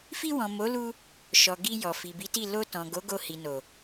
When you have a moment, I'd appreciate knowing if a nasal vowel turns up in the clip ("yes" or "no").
yes